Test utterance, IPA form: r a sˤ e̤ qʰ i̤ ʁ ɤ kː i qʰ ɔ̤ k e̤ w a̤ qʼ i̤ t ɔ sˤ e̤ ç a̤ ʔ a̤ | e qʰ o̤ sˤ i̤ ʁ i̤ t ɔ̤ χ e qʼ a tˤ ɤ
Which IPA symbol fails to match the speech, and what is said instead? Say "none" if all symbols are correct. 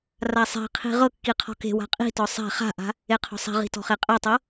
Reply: ç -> χ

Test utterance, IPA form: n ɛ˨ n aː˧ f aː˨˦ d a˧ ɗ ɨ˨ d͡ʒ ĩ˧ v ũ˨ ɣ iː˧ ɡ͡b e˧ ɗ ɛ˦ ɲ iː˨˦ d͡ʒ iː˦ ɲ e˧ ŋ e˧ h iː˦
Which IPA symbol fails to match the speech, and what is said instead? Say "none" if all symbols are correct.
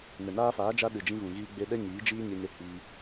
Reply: d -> d͡ʒ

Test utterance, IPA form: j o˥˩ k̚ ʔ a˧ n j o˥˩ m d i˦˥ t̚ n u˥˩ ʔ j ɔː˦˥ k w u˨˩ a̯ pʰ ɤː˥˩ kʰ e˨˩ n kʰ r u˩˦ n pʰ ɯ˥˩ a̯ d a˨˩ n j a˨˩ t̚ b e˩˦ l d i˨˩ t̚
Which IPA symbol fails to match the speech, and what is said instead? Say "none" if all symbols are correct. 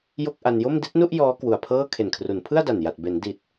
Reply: l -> n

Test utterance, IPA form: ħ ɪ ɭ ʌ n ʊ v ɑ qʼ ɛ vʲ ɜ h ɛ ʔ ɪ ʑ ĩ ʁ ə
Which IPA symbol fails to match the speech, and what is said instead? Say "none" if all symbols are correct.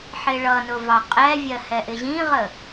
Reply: none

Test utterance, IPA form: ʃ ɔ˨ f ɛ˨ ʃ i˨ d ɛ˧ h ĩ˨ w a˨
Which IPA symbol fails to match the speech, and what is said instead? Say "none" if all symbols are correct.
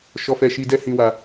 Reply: none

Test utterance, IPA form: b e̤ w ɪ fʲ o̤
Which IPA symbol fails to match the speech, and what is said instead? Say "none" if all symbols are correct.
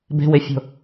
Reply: none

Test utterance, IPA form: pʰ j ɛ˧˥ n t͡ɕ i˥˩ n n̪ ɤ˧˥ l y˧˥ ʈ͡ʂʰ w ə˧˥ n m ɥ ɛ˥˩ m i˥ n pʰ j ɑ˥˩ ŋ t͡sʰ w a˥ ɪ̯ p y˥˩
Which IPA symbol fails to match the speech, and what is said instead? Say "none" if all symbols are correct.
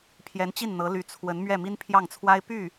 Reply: ʈ͡ʂʰ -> t͡sʰ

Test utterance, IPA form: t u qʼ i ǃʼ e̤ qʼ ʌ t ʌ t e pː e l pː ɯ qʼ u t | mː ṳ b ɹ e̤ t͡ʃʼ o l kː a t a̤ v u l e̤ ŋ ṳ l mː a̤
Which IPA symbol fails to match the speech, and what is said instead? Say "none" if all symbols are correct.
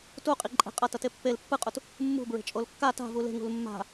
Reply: none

